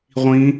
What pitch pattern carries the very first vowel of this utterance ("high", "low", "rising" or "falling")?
rising